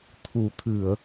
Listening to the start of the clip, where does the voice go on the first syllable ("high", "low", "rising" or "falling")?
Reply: low